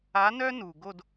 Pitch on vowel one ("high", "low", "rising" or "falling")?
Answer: rising